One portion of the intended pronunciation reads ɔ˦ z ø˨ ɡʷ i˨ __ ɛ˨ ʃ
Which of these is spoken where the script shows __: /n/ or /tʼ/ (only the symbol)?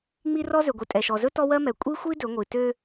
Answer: tʼ